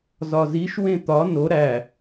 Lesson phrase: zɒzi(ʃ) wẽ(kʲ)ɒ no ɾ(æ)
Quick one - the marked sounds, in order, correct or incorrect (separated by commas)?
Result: correct, incorrect, correct